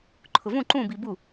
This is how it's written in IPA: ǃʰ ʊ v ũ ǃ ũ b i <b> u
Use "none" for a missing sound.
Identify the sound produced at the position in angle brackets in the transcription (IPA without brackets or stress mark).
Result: b